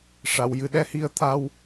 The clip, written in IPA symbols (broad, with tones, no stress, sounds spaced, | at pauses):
ʂ a˨˩˨ w j ɨ˨˩ ɗ ɛ˧ h i˧ ə̯ t̪ʰ a˧ w